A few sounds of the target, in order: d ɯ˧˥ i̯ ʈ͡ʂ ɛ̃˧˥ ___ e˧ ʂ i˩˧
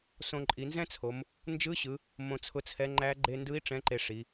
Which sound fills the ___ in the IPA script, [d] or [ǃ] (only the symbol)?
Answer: ǃ